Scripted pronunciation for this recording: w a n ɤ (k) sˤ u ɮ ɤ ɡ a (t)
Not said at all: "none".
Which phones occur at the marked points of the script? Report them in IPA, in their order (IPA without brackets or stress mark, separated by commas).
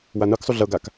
k, k